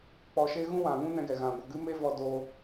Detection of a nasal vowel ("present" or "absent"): present